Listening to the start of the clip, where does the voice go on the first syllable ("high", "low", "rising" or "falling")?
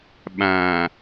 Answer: low